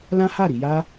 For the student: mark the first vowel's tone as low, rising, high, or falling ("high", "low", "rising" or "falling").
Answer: high